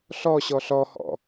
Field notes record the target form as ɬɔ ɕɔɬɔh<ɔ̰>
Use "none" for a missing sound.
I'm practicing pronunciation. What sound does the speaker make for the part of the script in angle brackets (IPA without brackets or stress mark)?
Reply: ɔ̰